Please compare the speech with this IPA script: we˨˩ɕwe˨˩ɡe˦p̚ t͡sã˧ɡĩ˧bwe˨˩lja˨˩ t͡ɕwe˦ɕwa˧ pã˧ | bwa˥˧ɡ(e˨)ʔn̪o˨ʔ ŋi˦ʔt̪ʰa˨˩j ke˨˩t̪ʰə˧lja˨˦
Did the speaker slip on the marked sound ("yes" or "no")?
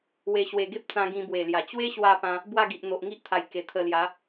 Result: yes